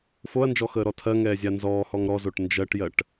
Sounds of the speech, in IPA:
f o ɐ̯ n d͡ʒ ɔ x əː ɾ ɔ tʰ ɜ ŋ ɛː zʲ a n z ɔː h ɔ ŋ ɾ ɔ z o ʈ n d͡ʒ ɜ ʈ j ɜ ʈ

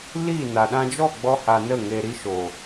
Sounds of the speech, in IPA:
l i˦˨ n a˨ ɗ ã˧ d͡ʒ ɔ˦˨ ɡ͡b ɔ˦ h a˧ n ə˦˨ ŋ e˧ ɾ i˧ ʃ o˨

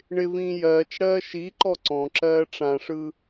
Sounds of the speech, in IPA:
ɳ ɪ v ĩː j ɜː t͡ʃ ɽ ɜː ʃ i ǃ ɔ ǀ ɔ̃ ǁ ɜː ʈ͡ʂ ã ʂ ɯ

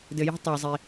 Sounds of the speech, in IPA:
d ɘ˩ j ə̤˦ tˤ ə˞˩ zˤ i˩

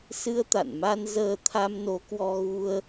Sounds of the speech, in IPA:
s ɨ˧ ə̯ t̪ a̰˧˨ n m a˧ n z əː˧ t̪ʰ a˧ m n o˨˦ k w ɔ˧ ɣ u˧ ə̯

